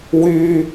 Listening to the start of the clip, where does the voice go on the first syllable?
high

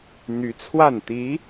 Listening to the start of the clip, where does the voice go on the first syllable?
rising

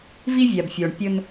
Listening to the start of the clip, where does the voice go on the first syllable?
high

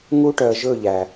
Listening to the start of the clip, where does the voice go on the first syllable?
high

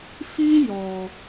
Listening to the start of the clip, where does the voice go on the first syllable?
high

